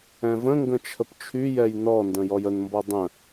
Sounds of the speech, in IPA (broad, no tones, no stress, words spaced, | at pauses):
ɛ̃və̃ŋɡə̃ t͡ʃʰəpt͡ʃʰyjɛj nɔndə̃ jɔjənmbɔ dˤə̃